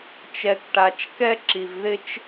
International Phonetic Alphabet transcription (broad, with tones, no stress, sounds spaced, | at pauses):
t͡ʃ ɛ˧ k ʈ a˧ t͡ʃ k ɛ˥ ǁ i˧ v ð ɪ˥ t͡ʃ